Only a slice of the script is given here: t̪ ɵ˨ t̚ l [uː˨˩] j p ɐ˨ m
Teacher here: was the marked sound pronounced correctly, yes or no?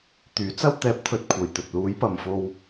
no